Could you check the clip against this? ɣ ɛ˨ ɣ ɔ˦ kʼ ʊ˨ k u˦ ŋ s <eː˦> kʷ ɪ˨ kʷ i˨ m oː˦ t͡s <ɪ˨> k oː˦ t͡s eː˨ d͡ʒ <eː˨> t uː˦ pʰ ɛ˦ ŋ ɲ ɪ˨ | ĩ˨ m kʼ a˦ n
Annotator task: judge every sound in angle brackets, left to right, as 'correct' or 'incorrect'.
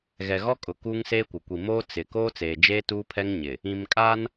correct, correct, incorrect: eː˦

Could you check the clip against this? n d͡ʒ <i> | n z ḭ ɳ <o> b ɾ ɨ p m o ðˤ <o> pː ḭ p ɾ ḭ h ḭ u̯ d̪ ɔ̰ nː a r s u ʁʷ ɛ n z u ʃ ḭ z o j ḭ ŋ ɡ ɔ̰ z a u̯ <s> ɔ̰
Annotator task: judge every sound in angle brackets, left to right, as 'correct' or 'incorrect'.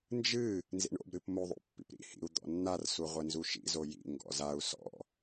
incorrect: ɨ, incorrect: o̰, incorrect: o̰, correct

